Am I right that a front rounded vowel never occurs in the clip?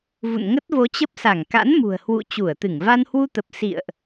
yes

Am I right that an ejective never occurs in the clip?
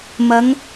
yes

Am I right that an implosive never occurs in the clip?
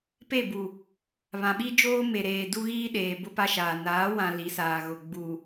no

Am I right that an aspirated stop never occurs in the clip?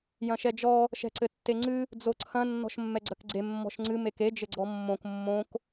no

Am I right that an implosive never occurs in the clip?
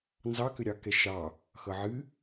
yes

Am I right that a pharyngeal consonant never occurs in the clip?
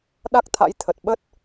yes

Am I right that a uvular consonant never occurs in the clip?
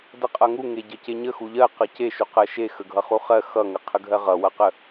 no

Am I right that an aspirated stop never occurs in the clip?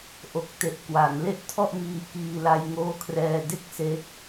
no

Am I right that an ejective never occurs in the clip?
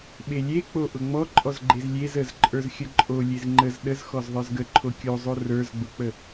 no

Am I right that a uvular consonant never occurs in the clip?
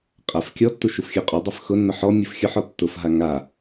no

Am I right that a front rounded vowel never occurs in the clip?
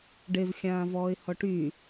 no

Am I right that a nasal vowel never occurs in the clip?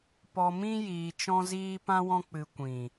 no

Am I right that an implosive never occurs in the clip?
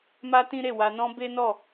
yes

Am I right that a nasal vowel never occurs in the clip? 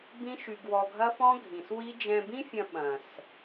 no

